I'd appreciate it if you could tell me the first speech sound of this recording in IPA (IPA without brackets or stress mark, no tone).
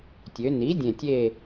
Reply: tʲ